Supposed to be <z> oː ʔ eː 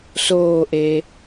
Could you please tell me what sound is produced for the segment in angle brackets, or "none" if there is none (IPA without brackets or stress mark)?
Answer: s